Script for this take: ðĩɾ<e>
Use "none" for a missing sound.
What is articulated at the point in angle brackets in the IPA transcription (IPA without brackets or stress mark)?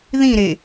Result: e